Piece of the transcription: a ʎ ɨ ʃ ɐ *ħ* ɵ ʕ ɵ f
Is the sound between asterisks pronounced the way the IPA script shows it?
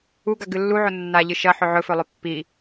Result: yes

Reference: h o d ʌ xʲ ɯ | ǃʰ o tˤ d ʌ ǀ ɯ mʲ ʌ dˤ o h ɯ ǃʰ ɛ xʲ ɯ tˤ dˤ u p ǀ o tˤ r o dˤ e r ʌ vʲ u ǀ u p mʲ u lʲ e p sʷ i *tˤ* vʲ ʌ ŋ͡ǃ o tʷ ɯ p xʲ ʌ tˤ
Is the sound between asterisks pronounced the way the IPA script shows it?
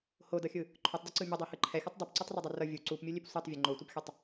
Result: yes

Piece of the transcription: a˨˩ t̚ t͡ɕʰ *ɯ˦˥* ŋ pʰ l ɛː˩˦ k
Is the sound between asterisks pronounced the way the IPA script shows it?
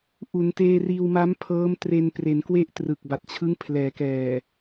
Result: yes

